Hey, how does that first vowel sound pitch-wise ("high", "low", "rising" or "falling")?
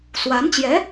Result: rising